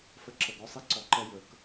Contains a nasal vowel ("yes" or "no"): no